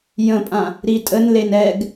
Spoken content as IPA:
j ə̃ pʼ ã | ɾ i tʼ ə n l e n ɛ ɡ

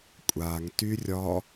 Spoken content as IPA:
kʷʼ a ŋ t y rʲ ɒ

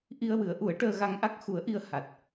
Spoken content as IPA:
ʔ i˧ ə̯ w ɨ˨˩˦ ə̯ ʔ u˨˩˦ ə̯ ʈ əː˧ ɣ a˧ ŋ ʔ a˦˥ k̚ x u˨˩˦ ə̯ ʔ i˧ ə̯ h a˨˩ t̚

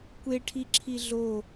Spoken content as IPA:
kʷ e ʈʰ i ǁʰ i ɮ o

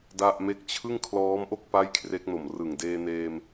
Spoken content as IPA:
d a˥˩ ʔ m e˦˥ k̚ t͡ɕʰ ɯ˥˩ ŋ kʰ l ɔː˦˥ m ʔ o˥˩ k̚ p a˥˩ j kʰ r e˦˥ k̚ n o˨˩ m r ɯ˨˩ ŋ d eː˧ n eː˧ m

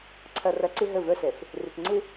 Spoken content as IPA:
ǀʰ ɐ˨ r ɐ˨˦ ǀ ɪ˦ ɦ ə˦˨ v œ˦ s ɛ˨ f | r ɪ˨ t ŋ͡ǀ ɪ˦

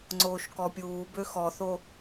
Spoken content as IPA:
ŋ͡ǀ oː ʃ k ɔ pʲ uː b ø x ɔ θ o

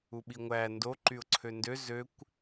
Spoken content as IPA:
u ɓ i ŋʷ æ n d o ǃ y ʊ̯ ǀʰ ø n d ø z ø kʷ

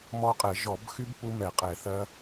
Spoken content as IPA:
m ɔ˦˥ qʼ ɛ˧˩˧ ʒ ɔ˧˩˧ b x y˦˥ b p u˦˥ m ɛ˧˩˧ qʼ ɛ˧˩˧ θ ɜ˦˥

